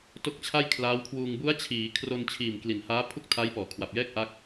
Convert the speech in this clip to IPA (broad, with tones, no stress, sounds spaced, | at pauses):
t o˦˥ k̚ t͡ɕʰ a˥˩ j kʰ l aː˦˥ w kʰ w uː˧ ŋ b u˦˥ a̯ t͡ɕʰ iː˩˦ kʰ r o˧ n t͡ɕʰ iː˨˩ m k l i˨˩ n h aː˦˥ pʰ u˥˩ k̚ tʰ a˦˥ j p ɔː˩˦ kʰ w a˨˩ p̚ j ɛː˥˩ k̚ ʔ a˦˥ k̚